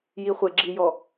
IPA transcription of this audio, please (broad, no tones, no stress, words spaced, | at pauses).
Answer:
jiχʷeɡ͡ǁijɔ